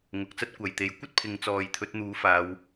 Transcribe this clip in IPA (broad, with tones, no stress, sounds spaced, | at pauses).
ŋ ʊ˨ k̚ t͡s ɐ˥ t̚ kʷ ɐ˨ j t̪ e˨˧ j kʷ ɐ˥ t̚ pʰ ɪ˨ ŋ t͡s ɔː˨ j t̪ʰ ɵ˨˥ t̚ n̪ uː˨˥ f aː˨˧ w